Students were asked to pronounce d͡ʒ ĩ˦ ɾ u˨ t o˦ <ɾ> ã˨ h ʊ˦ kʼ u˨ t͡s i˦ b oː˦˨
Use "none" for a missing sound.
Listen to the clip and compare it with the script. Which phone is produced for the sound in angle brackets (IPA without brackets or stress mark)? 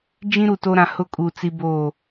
ɾ